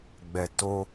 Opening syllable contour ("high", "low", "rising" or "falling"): low